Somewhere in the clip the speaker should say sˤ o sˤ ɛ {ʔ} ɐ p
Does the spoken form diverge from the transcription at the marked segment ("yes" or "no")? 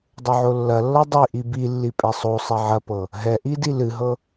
yes